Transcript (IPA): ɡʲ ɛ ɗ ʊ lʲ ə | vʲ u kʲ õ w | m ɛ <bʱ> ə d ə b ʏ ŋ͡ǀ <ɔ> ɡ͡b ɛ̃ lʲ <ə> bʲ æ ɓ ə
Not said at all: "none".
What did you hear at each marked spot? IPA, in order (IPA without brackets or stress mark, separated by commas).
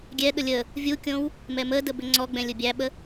m, ɔ, ʊ